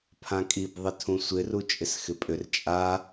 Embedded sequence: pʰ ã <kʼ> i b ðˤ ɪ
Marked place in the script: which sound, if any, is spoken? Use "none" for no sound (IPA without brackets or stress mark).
kʼ